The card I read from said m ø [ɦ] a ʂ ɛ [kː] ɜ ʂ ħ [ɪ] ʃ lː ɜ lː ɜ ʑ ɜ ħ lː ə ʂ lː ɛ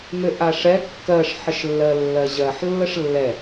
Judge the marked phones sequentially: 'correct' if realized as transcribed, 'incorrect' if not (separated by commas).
incorrect, correct, incorrect